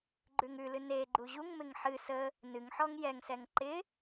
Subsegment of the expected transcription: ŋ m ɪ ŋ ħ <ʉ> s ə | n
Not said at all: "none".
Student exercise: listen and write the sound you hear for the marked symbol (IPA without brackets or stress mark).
ɨ